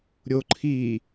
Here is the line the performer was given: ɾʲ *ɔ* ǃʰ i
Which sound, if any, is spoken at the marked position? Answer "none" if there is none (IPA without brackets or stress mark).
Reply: o